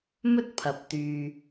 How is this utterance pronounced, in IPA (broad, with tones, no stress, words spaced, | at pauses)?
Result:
mɵ˥t̚ pʰɐ˨p̚ t̪yː˨